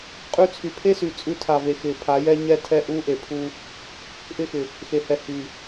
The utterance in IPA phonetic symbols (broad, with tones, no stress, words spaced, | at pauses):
qʼʉ˧t͡sʰy˨pʰe˦sy˨ t͡sʼʉ˧tʰa˨ve˨ xɪ˨ pʰa˨˦jɛ˦ ɲɛ˦ tʰɛ˦ʔu˦ʔe˨ pʰu˦ | ʔɪ˦xɪ˨ | xe˨hɛ˨ hy˨